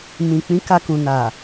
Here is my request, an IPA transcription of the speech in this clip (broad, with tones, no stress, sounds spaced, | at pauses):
m ĩ˨ k͡p ĩ˨˦ k a˧ k ũ˨ n a˨